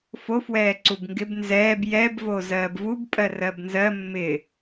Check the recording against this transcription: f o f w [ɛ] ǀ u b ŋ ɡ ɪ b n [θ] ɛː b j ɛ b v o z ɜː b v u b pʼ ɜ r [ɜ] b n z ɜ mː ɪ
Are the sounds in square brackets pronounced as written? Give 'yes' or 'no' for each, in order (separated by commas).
no, no, yes